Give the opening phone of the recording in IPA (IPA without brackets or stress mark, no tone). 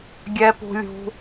ɡʲ